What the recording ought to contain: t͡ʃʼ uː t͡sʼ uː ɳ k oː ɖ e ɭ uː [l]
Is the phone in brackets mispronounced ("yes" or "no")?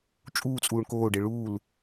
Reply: no